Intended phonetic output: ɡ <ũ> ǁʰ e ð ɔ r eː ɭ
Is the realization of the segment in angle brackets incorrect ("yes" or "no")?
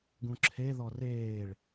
no